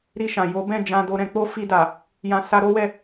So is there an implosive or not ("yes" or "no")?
no